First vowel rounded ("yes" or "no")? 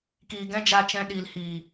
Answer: no